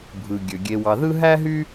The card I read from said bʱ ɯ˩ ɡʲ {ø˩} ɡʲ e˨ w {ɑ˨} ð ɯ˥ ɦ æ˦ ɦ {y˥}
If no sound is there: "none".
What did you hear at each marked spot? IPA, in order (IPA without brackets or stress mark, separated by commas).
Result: ø˩, ɑ˨, y˦